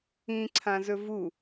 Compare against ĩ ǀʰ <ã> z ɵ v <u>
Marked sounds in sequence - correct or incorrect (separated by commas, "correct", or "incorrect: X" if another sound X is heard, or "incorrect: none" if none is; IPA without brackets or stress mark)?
correct, correct